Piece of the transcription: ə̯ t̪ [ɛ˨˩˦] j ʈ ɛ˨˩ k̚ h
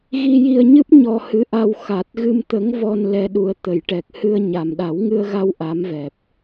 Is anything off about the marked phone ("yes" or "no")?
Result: yes